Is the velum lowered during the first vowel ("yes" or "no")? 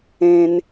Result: yes